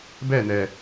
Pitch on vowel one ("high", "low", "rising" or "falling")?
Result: falling